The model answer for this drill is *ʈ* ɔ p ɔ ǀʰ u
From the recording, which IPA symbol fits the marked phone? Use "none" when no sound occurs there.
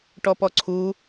ʈ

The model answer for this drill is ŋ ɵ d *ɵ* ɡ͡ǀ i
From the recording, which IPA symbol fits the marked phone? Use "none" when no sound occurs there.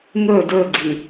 ɵ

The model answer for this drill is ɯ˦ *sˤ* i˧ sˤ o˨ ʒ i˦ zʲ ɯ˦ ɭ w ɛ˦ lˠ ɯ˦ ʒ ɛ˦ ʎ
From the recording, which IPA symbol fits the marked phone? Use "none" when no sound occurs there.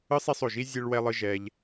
sˤ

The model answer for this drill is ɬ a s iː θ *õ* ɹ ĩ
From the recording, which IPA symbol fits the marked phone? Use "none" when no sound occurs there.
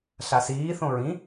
õ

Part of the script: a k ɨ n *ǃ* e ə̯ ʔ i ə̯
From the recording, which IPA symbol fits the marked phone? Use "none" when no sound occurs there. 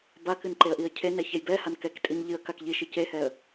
ǃ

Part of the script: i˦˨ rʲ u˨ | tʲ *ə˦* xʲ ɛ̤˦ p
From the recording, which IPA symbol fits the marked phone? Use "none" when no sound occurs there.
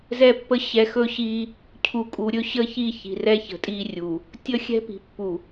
ə˦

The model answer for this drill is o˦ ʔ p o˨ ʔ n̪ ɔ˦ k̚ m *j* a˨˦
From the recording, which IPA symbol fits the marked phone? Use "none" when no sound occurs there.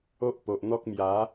j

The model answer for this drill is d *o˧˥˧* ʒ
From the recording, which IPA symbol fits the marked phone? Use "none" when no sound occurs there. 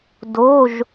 o˧˥˧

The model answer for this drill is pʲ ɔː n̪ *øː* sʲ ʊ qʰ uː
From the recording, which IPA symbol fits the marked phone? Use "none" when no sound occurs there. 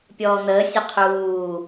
əː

